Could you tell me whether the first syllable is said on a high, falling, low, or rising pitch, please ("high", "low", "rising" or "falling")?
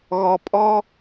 low